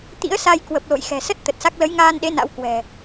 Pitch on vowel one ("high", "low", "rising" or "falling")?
rising